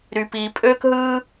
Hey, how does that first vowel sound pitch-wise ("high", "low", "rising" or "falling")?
low